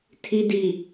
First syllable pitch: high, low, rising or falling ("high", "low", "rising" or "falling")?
low